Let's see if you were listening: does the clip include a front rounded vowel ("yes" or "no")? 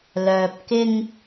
yes